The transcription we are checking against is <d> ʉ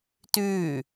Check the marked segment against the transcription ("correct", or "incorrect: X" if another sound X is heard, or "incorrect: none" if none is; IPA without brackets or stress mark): incorrect: t